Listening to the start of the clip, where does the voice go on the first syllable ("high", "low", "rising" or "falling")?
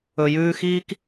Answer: low